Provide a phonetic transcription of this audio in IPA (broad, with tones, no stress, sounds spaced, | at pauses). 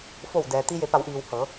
f o˧˩ w d ɛː˩ t̪ i˧ j e˩˧ p a˩˧ w ʔ iː˩ w h ɤː˩˧